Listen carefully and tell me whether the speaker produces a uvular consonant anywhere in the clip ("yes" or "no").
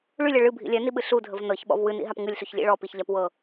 no